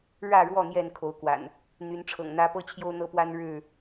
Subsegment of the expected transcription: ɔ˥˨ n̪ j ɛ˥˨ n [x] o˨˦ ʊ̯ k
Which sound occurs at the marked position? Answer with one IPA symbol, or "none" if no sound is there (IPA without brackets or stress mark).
kʰ